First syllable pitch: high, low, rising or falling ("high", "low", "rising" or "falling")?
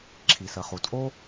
low